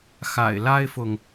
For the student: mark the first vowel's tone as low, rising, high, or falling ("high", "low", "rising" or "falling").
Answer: low